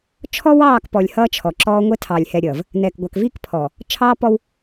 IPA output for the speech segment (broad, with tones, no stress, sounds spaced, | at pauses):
t͡ʃʰ ɔ˦ w ɑː˦˨ k p ɔ˨ lʲ h ʌː˦ t͡ʃʰ ɔ˨ ǁ ɔː˦ ŋʷ ɛ˦ tʰ ɑ˨ lʲ h ɛ˨ ɾʲ ʌː˨ v | n ɛː˨ k ɡʷ ɑ˨ k v iː˦ k pʰ ɔː˨ | t͡ʃʰ ɑː˦ p ɔ˦ w